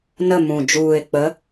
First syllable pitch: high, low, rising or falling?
falling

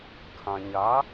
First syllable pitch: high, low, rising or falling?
low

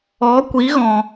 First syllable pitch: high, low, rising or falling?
rising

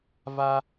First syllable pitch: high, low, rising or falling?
high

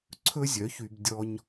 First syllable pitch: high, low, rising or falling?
high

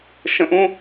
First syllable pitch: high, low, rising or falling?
high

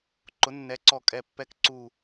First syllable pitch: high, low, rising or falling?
rising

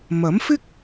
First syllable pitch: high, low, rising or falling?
rising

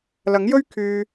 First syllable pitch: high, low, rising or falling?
rising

